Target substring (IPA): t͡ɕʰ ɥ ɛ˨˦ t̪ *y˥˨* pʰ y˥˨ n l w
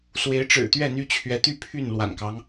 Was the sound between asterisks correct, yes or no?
yes